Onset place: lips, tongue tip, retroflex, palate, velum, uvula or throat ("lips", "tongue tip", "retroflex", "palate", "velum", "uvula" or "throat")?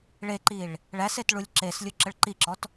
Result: retroflex